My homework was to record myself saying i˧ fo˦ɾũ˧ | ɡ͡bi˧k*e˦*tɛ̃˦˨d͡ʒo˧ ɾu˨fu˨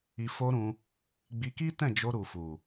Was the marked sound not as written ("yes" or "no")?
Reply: yes